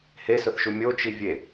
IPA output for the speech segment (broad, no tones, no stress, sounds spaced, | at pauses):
h e s ʊ θ ʃ u mʲ o t͡ʃ i vʲ e